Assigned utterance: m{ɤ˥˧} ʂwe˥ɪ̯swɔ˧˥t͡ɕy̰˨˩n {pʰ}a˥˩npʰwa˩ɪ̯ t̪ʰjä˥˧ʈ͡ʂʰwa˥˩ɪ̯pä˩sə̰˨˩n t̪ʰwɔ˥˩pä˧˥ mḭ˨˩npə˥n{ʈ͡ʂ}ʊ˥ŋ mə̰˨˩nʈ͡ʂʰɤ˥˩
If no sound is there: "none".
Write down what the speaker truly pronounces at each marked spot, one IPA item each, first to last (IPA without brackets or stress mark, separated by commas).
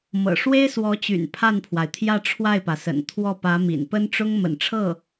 ɤ̰˨˩, pʰ, ʈ͡ʂ